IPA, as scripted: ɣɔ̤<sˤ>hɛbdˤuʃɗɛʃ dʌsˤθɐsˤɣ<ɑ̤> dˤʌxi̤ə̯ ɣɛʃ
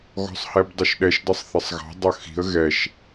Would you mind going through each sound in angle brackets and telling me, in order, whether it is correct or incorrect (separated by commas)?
correct, correct